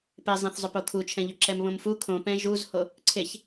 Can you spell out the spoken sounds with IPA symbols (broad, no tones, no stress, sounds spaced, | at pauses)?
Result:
p e zˤ ẽ θ zˤ ɵ p o kʰ u t͡ʃʰ ɛ̃ ʎ ɵ ǁ ɛ m β õ m f u kʰ õ p ɛ̃ ʒ u z h o | ǀʰ e ç